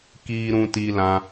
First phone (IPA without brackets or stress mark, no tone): k